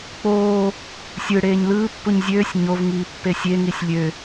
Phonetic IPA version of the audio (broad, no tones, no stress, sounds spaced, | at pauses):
k͡p oː | sʲ ɯ ɽ eː ɲ l ɯː pː u ɲ zʲ øː sʲ ɲ o v ŋ iː pː e sʲ e ŋ i sʲ lʲ ø